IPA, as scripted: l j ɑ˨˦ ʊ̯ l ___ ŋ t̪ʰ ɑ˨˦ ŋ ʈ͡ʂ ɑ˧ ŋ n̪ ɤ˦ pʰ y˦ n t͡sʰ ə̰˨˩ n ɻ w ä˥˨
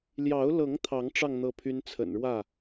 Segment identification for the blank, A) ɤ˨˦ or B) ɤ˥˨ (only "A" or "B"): A